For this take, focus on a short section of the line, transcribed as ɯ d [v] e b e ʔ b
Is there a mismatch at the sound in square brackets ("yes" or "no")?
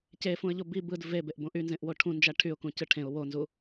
no